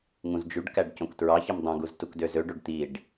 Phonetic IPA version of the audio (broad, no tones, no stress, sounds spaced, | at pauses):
ŋ ũ z d͡ʒ y ɖ k æ ɖ c õ k t ɹ ɑ ç i m dˤ õ ɡ u z t u k d ø z ø ɖ o ɖ t̪ i ɖ